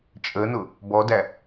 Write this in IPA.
t͡ʃʼ ə n ʊ | b ɔ d æ

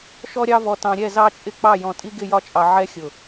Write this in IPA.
ʃ ɔ˥ ɾʲ ɑ˥ v ɔ˧ t ɑ̃˧ ɾʲ ɛ˥˧ z ɑ˥ t͡ʃʼ ɪ˥˧ k͡p ɑ˥˧ j ɔ̃˧ tʼ i˥ ɡ ɪ˥˧ j ɒ˥ t͡ʃʼ ɑ˧ ʕ ɛ˥ xʲ ʊ˧˩

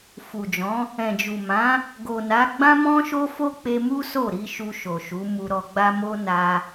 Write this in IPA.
f u˨ d͡ʒ ɔ̃˨˦ | ɛ̃˨ d͡ʒ u˨ m ã˨˦ | ɡ o˨ n a˨˦ ɡ͡b ã˦ m ɔ̃˦ ʃ o˦ f o˦ k͡p e˧ m u˦ s o˦˨ ɾ i˧ ʃ u˧ ʃ o˨ ʃ u˨˦ m u˧ ɾ ɔ˧ ɡ͡b a˦ m o˦ n a˧

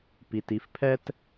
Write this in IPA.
p i˩ t i˩˧ f pʰ ɛ˥ t

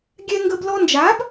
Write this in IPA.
ɡʲ ɛ˧ ŋ ɡ ə˧ b l ɔ˧ n d͡ʒ a˨˦ b

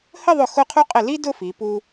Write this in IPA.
h ə˥˧ ðˤ ʊ˧˩ x ʊ˥˧ qʰ u˥ qʼ ɪ˧˩ l i˥ d ʊ˥˧ f i˩˧ p u˧

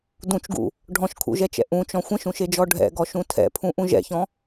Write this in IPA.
d ũ t͡ʃ ɡ ṵ | ɖʱ ɔ̃ ʃ kʰ ṵ ʒ ɛ t͡ʃ ɛ̰ ʔ ũ t͡ʃ ɔ̃ xʷ ə̃ ʃ ũ ʃ e d͡ʒ ɔ ɖʱ ɛ̰ ɡ ɔ ʃ ũ tʰ ɛ̰ pʰ ũ ʔ ũ ʒ ɛ̰ ç ɔ̃

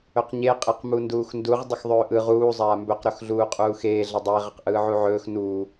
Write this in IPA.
ɵ q ɲ e qʼ e q m u n d uː x n d u ʁ dˤ ə x ðˤ ɵː ʔ ɯ ʁ uː zˤ aː m b ɵ q ɾ ɵ x ɮ uː qʼ uː x eː ɮ ə dˤ e ʁ ə q ʔ ɯː ʕ u ʕ ɵː x n uː

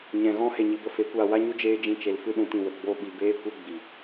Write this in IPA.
ɲ ɛ̃˨ ɣ ɔ̃˦ h e˧ ɲ i˧ b ə˦ f e˨˦ kʷ aː˧ w a˦ ɲ u˦ d͡ʒ eː˦ d͡ʒ ĩ˧ t͡ʃ e˧ l f ɨ˦ ɗ ũ˧ t ĩ˧ w ə˨ ɡ͡b o˦ ɓ i˧ b eː˦ kʷ e˦ ɡ͡b i˨

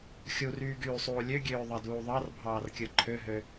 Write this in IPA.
xʲ u r yː ɡ yː sˤ uː lʲ ø ɡʲ øː ðˤ ɑ d uː ðˤ ɑ r bʱ ɑː r kʲ ɯ ǃʰ ø ɦ ø

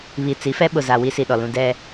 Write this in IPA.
β i˨ t͡s i˨˦ f ɛ˦ ɓ ʊ˨ z a˨ w i˦ s i˨ ɗ ɔ˨ l ũ˦ d ɛ˦

